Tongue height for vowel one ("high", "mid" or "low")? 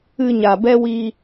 high